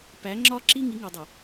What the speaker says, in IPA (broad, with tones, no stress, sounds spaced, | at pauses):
p æ˨˦ ŋ͡ǁ ɒ˦ ǁ i˦ ŋ i˨˦ ŋ u˨ dˤ u˨